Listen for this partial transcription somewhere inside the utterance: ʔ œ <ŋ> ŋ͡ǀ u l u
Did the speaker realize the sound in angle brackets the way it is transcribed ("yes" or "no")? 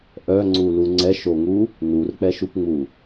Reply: no